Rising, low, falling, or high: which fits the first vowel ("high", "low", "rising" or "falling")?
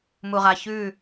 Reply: low